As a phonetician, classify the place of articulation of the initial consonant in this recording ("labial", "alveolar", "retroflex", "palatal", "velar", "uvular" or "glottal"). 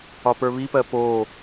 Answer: labial